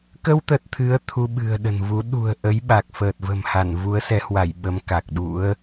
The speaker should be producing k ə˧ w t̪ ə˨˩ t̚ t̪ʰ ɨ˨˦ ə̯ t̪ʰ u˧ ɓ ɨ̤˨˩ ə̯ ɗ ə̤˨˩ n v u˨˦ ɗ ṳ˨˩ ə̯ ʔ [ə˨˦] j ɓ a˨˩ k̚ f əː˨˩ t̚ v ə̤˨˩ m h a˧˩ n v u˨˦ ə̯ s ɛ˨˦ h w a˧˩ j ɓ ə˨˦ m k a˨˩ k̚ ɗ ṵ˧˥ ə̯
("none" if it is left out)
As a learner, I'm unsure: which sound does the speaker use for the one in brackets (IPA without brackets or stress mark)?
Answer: ə˨˦